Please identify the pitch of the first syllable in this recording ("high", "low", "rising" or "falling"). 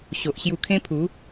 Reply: low